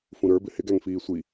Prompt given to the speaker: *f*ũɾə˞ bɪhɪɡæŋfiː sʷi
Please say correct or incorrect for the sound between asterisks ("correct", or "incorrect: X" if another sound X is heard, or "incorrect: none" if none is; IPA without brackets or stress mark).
correct